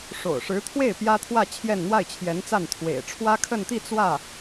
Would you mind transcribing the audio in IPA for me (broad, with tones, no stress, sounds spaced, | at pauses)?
ʂ o̰˨˩ ʊ̯ ʂ ɻ̩˧˥ t̪ʰ w e˥˩ ɪ̯ p j ä˥ t̪ʰ w ä˥˧ t͡ɕʰ j ɛ˥˧ n n̪ w a˥˩ ɪ̯ t͡ɕʰ j ɛ˧˥ n t͡s a˥˩ n t̪ʰ w ḛ˨˩ ɪ̯ ʈ͡ʂʰ w ä˥ kʰ ə˥˧ n t̪ i˥˧ t͡s w ä˥˩